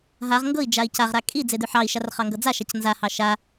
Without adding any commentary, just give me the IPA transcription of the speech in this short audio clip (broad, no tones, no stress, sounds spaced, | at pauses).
ɦ a ʁ ŋ ɡ ɤ i̯ d͡ʒ a i̯ c a ʁ ɾ a kʼ i d͡z e d ʉ ħ ɑ i̯ ʃ a r χ ɑ ŋ ɡ ɤ d͡z a ʃ a c n z a h ɑ ʃ a